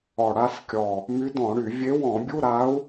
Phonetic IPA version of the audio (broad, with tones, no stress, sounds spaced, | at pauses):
ɔ˨˩ ɽ a˥˧ s kʲ ɔ˨˩ | m y˧˥ d ɔ̃˧˩˧ ɽ y˧˩˧ vʲ e˧˥ w ɔ̃˧˩˧ bʲ u˧˥˧ ɾ a˧˥ u̯